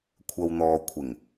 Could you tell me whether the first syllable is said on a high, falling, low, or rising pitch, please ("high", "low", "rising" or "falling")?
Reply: low